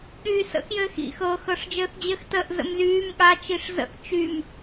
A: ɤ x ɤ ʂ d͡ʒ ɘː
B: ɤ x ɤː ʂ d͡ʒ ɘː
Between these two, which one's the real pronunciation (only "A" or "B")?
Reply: A